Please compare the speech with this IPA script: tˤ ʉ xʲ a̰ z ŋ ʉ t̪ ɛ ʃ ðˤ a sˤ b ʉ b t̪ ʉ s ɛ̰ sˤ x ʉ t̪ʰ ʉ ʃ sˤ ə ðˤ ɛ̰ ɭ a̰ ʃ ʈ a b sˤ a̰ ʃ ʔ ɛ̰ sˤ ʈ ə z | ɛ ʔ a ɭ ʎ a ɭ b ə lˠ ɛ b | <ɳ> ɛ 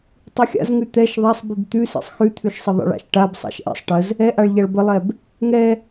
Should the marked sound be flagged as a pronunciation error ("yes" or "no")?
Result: yes